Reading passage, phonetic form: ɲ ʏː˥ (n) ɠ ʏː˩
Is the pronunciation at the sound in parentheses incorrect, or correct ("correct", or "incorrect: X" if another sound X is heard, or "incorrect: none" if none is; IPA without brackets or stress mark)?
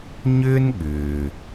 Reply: correct